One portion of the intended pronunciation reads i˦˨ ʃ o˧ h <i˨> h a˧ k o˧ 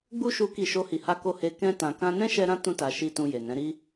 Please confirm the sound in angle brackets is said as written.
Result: yes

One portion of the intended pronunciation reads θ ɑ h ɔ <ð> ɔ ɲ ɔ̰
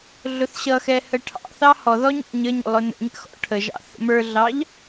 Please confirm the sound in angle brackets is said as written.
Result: yes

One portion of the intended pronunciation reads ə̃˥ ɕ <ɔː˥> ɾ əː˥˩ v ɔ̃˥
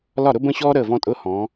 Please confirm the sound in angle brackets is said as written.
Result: yes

